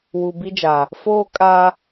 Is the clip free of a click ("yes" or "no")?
yes